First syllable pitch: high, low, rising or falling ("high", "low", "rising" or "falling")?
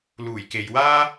low